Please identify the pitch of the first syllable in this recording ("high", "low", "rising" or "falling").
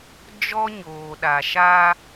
high